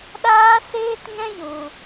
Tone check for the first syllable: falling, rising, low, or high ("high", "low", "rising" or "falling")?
high